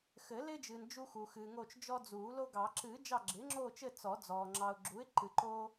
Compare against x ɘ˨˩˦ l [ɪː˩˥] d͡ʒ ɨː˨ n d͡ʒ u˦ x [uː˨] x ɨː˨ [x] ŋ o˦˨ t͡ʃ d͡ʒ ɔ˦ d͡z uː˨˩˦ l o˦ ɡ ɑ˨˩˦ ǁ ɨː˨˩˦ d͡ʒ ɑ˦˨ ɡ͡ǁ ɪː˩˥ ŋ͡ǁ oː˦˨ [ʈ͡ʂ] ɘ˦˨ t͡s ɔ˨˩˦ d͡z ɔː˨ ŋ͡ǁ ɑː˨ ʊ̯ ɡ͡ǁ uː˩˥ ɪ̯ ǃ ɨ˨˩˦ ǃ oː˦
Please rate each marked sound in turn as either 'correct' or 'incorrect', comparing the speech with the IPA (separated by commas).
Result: incorrect, correct, incorrect, incorrect